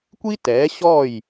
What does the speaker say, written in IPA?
kʷ i˥ t ɛː˩˥ ɕ ɔ˥˩ j

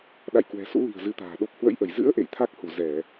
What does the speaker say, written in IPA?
ɗ a̰˧˨ j k w ɛ̤˨˩ s ṵ˧˥ l i̤˨˩ ə̯ z ɨ˨˦ t̪ a̤ː˨˩ ɗ o˦˥ p̚ h w ə̰˧˥ j ʔ ə˧˩ j z ɨ̰˧˥ ə̯ ʔ ḛ˧˨ j t̪ʰ a˦˥ k̚ h u˧˩ z ɛ˧˩˨

